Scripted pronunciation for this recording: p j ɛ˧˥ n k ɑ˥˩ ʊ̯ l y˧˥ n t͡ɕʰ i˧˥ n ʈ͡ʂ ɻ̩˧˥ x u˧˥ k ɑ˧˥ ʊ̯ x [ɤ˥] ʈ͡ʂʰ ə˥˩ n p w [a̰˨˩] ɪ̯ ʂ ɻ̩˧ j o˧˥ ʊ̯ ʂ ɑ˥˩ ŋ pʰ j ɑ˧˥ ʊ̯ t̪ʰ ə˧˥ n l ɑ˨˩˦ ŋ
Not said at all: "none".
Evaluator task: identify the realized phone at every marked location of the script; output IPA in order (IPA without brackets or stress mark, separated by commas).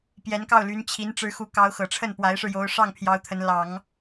ɤ˨˩, a˧˥